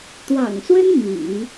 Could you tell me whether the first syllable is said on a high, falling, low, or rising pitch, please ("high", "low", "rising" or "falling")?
low